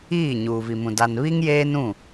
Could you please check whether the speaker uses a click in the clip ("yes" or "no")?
no